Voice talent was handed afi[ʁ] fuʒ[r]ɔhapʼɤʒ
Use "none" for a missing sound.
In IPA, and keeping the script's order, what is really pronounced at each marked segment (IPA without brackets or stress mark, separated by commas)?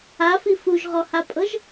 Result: none, ʁ